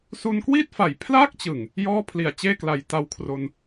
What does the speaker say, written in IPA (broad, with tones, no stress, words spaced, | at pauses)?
su˧nkwiː˥˩t̚fa˨˩j pʰlaː˥˩k̚t͡ɕɯ˨˩ŋ | jɔː˥˩pʰli˨˩a̯ t͡ɕeː˥˩kla˨˩j ta˧wkʰro˧n